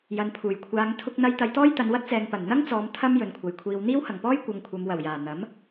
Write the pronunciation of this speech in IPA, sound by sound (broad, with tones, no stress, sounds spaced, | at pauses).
j ɐ˨ n pʰ uː˨˩ j kʷʰ aː˨˧ ŋ t̪ʰ ʊ˥ k̚ n̪ ɐ˥ j t̪ ɐ˧ j t̪ ɔː˥ j t̪ ɐ˨˧ n w ɐ˥ t̚ t͡s ɛː˨ ŋ p ɐ˨˩ n n̪ ɐ˥ ŋ t͡s ɔː˨˧ m t̪ʰ ɐ˥ m j ɵ˨ n kʷʰ ɐ˨ j kʷʰ iː˧ w n̪ iː˥ w h ɐ˨˩ ŋ p ɔː˥ j kʷ ɐ˨˧ ŋ kʷʰ ɐ˨˧ m w ɐ˨˩ w j aː˨˩ n̪ ɐ˨˥ m